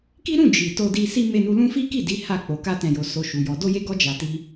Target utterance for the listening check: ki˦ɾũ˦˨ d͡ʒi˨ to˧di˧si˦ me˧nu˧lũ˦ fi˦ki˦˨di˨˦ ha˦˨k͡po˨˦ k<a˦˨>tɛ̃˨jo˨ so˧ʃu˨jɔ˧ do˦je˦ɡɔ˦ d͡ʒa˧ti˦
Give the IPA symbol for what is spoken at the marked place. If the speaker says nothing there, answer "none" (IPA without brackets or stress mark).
a˧